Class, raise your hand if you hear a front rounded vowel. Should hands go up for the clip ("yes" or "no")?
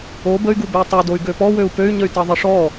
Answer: yes